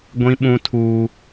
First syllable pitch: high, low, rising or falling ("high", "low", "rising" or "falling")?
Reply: high